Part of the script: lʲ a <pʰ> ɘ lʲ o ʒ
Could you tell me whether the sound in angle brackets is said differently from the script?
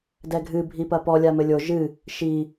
yes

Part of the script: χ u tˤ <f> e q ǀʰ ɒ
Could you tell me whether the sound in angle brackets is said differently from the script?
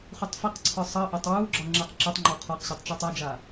no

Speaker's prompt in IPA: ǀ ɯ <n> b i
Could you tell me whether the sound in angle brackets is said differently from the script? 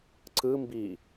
yes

